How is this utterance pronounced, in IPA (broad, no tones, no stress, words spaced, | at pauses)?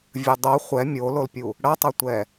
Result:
vʲɯdˤo χʷɛ mʲololpʲu | ɽʌtˤʌtʷɛ